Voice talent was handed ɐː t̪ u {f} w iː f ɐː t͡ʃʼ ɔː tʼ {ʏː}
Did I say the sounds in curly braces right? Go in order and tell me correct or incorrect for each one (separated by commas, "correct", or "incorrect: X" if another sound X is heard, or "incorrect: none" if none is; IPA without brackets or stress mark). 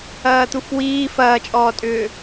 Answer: correct, correct